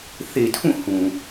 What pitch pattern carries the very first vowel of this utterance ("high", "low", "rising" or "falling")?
low